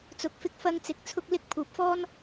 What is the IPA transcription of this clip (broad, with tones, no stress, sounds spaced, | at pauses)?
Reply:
t͡s ʊ˨ k̚ f ɪ˧ k̚ f ɐ˧ ŋ t͡s ɪ˨˥ k̚ t͡sʰ ʊ˧ k̚ l ɪ˧ k̚ pʰ uː˨ p̚ f ɔː˥ n